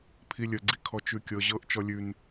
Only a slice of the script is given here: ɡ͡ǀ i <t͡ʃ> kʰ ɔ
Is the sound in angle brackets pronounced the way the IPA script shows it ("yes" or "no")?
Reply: no